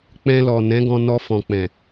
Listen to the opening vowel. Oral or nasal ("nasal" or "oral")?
nasal